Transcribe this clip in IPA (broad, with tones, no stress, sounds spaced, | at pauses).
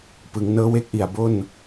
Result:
p ɯ˩˦ ŋ n ɤː˦˥ w e˦˥ k̚ ʔ i˨˩ a̯ b o˥˩ n